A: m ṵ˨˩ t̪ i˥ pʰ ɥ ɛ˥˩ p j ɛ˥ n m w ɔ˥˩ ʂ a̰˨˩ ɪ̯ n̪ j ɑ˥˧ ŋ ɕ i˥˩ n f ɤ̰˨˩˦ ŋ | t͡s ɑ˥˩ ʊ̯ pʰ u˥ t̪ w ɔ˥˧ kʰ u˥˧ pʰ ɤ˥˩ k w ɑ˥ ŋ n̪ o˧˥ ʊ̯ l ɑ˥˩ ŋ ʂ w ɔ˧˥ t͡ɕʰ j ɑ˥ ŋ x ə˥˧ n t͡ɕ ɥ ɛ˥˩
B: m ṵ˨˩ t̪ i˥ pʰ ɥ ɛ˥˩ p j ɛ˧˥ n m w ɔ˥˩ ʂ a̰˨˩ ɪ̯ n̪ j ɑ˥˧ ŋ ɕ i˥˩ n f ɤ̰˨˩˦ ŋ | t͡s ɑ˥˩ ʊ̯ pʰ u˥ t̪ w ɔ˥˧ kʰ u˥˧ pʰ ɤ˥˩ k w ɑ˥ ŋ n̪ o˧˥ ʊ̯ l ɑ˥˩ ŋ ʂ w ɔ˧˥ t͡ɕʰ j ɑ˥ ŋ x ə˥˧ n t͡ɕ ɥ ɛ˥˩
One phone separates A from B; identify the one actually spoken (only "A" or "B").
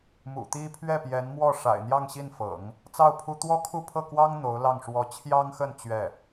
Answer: B